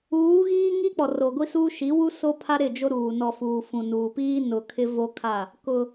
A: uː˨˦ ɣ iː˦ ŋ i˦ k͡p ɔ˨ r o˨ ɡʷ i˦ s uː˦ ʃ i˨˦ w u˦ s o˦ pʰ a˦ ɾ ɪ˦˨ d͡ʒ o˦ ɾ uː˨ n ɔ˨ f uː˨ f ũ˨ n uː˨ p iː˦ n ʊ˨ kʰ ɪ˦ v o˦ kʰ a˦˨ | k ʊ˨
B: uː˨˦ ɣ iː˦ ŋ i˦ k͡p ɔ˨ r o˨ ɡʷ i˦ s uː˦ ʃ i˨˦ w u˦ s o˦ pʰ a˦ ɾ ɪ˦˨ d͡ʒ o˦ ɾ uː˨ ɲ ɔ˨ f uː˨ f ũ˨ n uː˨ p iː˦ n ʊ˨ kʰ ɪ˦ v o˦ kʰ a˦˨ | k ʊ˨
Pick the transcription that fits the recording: A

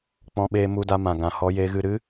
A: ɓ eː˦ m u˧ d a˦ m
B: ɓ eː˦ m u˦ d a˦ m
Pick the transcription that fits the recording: B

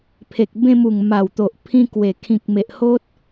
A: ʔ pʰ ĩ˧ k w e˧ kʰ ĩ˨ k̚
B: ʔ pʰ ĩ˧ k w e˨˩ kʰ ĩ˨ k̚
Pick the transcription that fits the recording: B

